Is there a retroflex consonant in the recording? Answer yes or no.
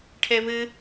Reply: yes